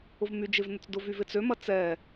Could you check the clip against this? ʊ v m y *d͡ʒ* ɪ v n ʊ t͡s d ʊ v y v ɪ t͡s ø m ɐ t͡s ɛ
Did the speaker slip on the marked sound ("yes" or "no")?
no